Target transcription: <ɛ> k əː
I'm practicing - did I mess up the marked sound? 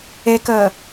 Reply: yes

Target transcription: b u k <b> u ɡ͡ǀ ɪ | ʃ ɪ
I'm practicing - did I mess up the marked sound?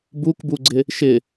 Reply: no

